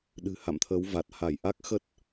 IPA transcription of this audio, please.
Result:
ɗ ɨ̤˨˩ h a̰˧˨ m t̪ʰ əː˨˦ w v a˨˩ t̚ h a˧˩ j ʔ a˦˥ k̚ x ə˦˥ t̚

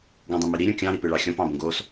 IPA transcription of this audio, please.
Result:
ɡ õ dˤ ĩ m i ɾ i ɾʲ õ kʲ ɑ̃ ɾ i p ɨ ɭ ɑ xʲ ɔ̃ p ɑ̃ b õ ɡ o s

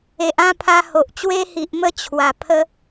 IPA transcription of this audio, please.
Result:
e˨ ʔ ã˥˧ pʰ a˧ h o˨ ʔ t͡ɕ w e˧ h i˨ ʔ m ə˧ t͡ɕʰ w a˨˩ pʰ ə˦

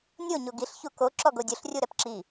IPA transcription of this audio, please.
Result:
nʲ o ɲ o ɡ i ɬ ç u k o ǁ ɔ ɡ o dʲ ʊ ɬ rʲ u ɾ ɛ p ǁ i

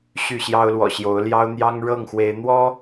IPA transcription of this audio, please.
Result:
ɕ y˥˨ ɕ j ɑ˦ ʊ̯ l w ɔ̰˨˩ ɕ j o˨˦ ʊ̯ l j ɑ˦ ʊ̯ n̪ j ɑ˦ ŋ ɻ ɤ˥˨ ŋ x w e˨˦ ɪ̯ n̪ w ɔ˦

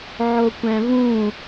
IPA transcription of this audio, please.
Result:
ʕ o kʷ æ̃ v ũ

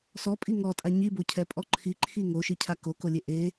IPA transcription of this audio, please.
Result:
s ɔ pʼ i ŋ ɔ tʼ a ɲ i b o cʰ ɛ pʼ ɔ ǃʰ i ǃʰ i ŋ o ʃ i cʰ a k o k o lʲ e ʔ e

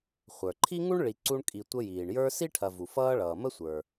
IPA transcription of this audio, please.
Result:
χʷ ə˞˩ ǃʰ i˥ ŋ u˥ ɳ ɭ i˨ ǀ u˦ ɳ kʼ i˨ tʷ ə˦ j iː˩ ɳ j ə˞˦ s i˥ ʈʰ ɐ˨ v u˩ f ʌː˦ ɭ ʌː˩ m ə˥ sʷ ə˞˩

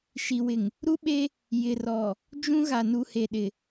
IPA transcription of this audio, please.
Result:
ʃ i˨ w ɪ˨ ŋ | ɾ u˦ ɓ e˦ | j ɪ˨ r ɔ˨ | d͡ʒ ũ˦ ɣ a˨ n u˨ h e˨ ɗ ɪ˨

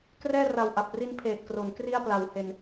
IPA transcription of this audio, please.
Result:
k r ɛː˥˩ r a˨˩ w ʔ a˨˩ p̚ r i˦˥ n pʰ eː˨˩ t̚ k r o˩˦ n k r i˥˩ a̯ p l a˩˦ w h e˨˩ n

